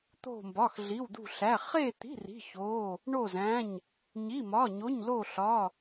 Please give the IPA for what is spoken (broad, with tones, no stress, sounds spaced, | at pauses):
t̪ o̤˥˧ m b ɒ˧˥˧ x ɮ i˧˥˧ w d̪ ṳ˥˧ ɬ æ˧˥˧ χ e˥˧ t̪ i̤˧˥˧ r i̤˧˥˧ ç o˧˥˧ | ɳ o˥˧ z æ̃˧˥˧ ɲ | ɲ i˧˥˧ m ɒ˧˥˧ ɲ o˧˥˧ ɲ l o˥˧ ɬ ɒ˧˥˧